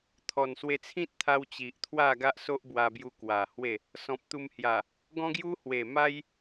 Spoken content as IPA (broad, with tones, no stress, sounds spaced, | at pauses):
t̪ʰ ɔ˨˩ n s w e˧ t͡sʰ ĩ˦ t̚ t̪ʰ a˧ w t͡ɕ i˨ ʔ t̪ʰ w a˥˧ ɡ a˦ ʔ s o˦ ʔ b w a˧ b j u˧ k w a˨˩ h w e˥˧ | s ɔ̃˨ p̚ t̪ u˧ m h j a˨˩ | ɡ ɔ̃˦ ɡ j u˦ h w e˨˩ m a˦ j